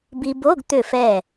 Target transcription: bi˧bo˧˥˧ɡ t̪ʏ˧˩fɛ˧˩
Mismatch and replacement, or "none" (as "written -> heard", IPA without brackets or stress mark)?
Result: none